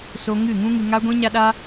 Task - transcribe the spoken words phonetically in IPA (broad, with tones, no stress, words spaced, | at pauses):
so˧ ŋɨ˦˨ ŋũ˦ŋɨ˧ ŋa˦ɡʷĩ˦ɲa˦ɗa˦